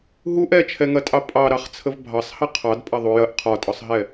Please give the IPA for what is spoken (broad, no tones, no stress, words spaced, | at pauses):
ɦuʔ ɛt͡ʃʰɛŋɐtʼɑ pʼɑɾɑχt͡sʰəv bʱɑsˤhɐ qʰɑdpʼɐðˤu jɐʔ qʰɒtʼɒsˤɦɛ